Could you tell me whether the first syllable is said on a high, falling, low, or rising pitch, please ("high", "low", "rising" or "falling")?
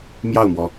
falling